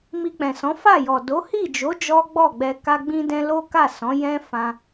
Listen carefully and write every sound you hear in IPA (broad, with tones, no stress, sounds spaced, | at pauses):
m i˧ k͡p ɛ̃˨ s ɔ̃˨˦ f a˦˨ j ɔ˨ d o˨˦ h i˦˨ d͡ʒ o˨˦ d͡ʒ ɔ˦ ɡ͡b ɔ˦˨ ɡ͡b ɛ˧ k a˧ ɡ͡b ĩ˧ d ɛ̃˧ l o˦ k a˦˨ s ɔ̃˨˦ j ɛ̃˦ f ã˧